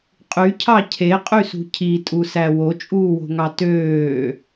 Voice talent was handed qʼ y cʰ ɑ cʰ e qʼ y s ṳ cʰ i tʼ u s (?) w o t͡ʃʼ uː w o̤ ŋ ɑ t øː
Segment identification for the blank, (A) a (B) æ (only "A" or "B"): B